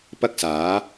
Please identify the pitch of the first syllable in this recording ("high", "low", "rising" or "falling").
high